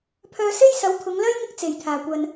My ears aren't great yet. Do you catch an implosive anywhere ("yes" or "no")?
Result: no